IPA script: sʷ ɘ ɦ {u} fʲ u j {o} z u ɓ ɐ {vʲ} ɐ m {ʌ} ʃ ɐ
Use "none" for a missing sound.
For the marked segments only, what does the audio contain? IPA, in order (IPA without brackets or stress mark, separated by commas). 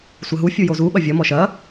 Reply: u, o, vʲ, ɔ